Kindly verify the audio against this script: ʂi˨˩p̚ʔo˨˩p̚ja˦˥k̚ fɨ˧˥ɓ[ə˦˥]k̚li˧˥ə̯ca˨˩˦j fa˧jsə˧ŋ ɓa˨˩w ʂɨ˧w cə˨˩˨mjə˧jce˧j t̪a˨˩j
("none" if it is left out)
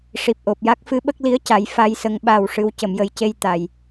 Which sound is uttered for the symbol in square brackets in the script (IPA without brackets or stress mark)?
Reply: ə˦˥